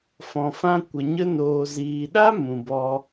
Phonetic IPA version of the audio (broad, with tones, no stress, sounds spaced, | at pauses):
f ɔ̃˨ f ã˧ kʷ ə˨ ɲ ə˧ n oː˨ z iː˨ ɗ a˦ m ũ˨ b ɔ˧